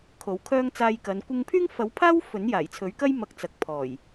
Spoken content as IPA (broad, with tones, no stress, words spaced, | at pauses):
kʰo˨˥wkʰœː˥ŋ t͡saː˧jkɐ˨˧n kʷɪ˧ŋpʰyː˥ŋfɐ˨˥wpʰaː˥w fɵ˨˥njaː˨˩jt͡sʰɵ˨˥ɥkɐ˥j mɐ˧k̚t͡sɐ˨k̚ pʰɔː˨˩j